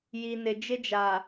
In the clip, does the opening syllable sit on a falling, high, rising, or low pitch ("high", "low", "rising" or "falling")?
low